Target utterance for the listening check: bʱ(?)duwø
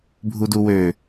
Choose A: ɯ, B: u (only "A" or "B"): B